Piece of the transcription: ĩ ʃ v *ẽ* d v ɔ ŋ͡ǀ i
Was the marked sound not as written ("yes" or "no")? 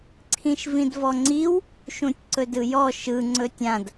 yes